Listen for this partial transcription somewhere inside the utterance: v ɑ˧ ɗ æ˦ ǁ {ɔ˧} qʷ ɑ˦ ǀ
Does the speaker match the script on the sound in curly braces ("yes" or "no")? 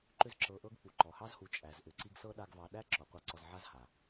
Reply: no